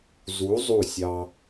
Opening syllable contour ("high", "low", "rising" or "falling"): rising